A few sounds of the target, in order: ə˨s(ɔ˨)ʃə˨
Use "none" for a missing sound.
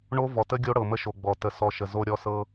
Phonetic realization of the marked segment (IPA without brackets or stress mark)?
ɔ˨